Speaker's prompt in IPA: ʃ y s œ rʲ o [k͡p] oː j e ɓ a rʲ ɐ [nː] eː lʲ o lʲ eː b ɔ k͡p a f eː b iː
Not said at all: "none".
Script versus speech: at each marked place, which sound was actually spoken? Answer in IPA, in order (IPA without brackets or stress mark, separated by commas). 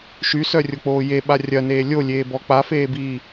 k͡p, n